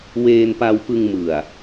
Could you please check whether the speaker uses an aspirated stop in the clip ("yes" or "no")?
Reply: no